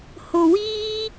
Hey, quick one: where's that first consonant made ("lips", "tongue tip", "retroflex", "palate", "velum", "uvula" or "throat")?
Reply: throat